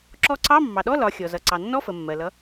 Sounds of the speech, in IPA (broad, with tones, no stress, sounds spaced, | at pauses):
ǁ ɔ˧ ǀ ɑ˧˥˧ mː ɑ˩ ɗ ɔ˧˥˧ l ɒ˩˧ xʲ ɔ˩ z ʌ˩ ǀ ɑ˩ nː ɔ˧˥˧ f ə˩ mː ɜ˩ l ʌ˩˧